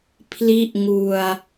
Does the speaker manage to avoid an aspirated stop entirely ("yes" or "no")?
no